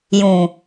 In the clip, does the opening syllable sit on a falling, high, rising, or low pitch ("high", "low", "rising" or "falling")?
low